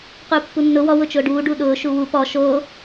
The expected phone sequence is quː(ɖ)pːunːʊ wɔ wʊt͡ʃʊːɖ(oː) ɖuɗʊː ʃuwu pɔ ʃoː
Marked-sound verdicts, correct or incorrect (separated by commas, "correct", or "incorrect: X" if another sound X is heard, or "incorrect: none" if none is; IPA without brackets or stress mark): incorrect: none, incorrect: uː